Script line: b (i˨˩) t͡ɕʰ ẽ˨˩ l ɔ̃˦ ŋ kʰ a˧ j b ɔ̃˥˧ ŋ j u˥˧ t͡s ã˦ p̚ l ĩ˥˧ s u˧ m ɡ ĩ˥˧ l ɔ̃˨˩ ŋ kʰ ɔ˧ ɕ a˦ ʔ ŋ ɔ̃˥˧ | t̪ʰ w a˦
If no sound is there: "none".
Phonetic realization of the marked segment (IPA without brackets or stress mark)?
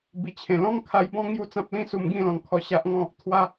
i˨˩